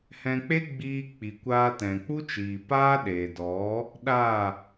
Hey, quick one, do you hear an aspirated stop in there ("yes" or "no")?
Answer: no